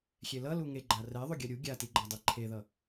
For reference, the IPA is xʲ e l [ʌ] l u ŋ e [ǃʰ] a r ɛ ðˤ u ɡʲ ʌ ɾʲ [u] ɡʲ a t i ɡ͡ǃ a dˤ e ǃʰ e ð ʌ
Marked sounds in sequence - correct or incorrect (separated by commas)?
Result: correct, incorrect, correct